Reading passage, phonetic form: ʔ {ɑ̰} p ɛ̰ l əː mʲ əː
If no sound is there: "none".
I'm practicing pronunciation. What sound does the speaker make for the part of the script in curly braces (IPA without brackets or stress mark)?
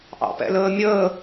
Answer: ɑ̰